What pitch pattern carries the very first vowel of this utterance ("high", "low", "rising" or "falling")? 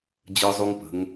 high